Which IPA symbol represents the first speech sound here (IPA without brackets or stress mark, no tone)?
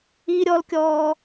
i